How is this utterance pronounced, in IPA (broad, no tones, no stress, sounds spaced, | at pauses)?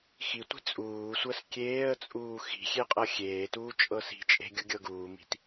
x i tʷ i̤ t͡sʼ uː sʷ ɜ s kʲ eː ə̯ t͡sʼ uː x i̤ xʲ e qʼ ɤ xʲ eː t uː t͡ʃʼ ɤ s i̤ t͡ʃʼ e̤ ɡʲ u ɡʲ ɤ ɡ uː m i̤ t